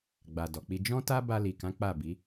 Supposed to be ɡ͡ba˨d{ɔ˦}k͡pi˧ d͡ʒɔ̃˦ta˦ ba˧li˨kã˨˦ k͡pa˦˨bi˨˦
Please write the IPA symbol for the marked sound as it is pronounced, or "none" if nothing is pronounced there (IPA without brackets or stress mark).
ɔ˨